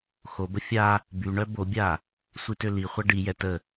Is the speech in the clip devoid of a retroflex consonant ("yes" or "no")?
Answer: no